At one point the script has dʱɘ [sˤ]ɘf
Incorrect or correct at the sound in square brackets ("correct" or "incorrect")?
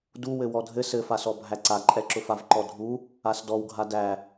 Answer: incorrect